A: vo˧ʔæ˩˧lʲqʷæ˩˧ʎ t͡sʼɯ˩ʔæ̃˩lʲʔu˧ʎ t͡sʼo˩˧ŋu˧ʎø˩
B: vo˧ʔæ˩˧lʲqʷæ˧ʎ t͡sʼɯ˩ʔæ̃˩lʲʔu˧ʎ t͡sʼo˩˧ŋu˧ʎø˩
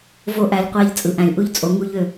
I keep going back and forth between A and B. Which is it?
B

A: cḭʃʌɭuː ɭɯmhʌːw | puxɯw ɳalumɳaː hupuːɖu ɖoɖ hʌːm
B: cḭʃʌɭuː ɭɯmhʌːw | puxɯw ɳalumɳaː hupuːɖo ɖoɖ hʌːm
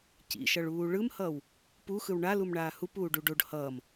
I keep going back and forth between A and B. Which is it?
A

